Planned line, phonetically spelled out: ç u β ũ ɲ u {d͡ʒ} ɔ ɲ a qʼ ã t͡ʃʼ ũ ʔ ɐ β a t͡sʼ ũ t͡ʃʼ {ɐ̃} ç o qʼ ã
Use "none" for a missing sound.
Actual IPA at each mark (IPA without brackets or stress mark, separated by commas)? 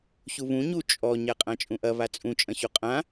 t͡ʃʼ, ɐ̃